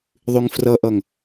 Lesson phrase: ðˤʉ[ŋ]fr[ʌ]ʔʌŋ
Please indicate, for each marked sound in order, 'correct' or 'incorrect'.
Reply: correct, correct

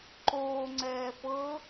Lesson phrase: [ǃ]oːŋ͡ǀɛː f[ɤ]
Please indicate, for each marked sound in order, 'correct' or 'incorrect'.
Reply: correct, correct

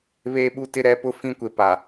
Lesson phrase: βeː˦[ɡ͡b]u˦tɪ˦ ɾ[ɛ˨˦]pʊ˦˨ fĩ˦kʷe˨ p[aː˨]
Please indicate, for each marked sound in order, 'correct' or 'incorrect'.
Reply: incorrect: ɓ, correct, incorrect: a˨

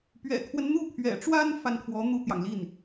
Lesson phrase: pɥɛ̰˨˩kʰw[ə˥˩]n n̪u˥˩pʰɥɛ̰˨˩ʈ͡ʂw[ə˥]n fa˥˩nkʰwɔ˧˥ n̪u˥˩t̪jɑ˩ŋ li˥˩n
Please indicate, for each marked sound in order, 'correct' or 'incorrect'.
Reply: incorrect: ə˦, incorrect: a˥

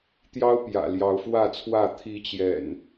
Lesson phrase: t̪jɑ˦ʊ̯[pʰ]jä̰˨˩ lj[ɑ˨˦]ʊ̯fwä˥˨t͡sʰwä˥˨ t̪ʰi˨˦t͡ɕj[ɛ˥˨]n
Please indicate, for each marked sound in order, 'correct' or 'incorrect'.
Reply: incorrect: p, correct, incorrect: ɛ̰˨˩

